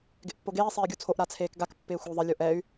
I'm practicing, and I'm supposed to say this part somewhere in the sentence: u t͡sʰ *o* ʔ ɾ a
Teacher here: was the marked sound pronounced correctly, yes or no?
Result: yes